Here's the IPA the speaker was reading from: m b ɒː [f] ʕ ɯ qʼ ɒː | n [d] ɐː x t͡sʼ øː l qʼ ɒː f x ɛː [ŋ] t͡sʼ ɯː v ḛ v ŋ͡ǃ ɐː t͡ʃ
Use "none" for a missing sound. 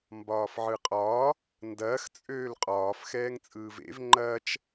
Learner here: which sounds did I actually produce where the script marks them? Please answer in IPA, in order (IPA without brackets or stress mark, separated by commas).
f, d, ŋ